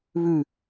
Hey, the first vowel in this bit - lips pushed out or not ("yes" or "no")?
yes